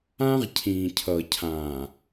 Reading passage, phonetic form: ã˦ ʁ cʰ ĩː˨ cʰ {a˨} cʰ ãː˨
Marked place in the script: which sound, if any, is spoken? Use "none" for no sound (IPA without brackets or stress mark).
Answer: ʌ˨